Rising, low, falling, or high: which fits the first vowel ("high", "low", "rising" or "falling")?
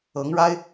rising